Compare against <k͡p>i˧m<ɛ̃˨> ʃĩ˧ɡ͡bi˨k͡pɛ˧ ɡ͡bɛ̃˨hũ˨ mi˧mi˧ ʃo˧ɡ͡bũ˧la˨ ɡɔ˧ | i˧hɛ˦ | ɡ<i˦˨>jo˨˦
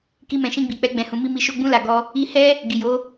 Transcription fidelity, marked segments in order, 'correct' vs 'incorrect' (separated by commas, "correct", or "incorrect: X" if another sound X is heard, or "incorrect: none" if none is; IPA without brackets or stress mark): incorrect: k, correct, incorrect: i˨